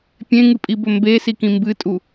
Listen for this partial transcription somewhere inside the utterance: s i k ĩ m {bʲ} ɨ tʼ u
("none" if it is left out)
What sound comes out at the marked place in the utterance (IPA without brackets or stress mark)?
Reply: b